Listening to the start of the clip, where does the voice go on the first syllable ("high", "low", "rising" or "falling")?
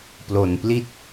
low